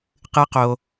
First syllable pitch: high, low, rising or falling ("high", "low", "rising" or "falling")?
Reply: high